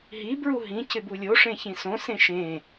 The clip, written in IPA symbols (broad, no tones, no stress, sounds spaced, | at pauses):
ɦ i b ɹ u ɦ ĩ c ɪ b u lʲ o ʂ ẽ ç ĩ s õ s ẽ ʃ ẽ